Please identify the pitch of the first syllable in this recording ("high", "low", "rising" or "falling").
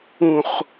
low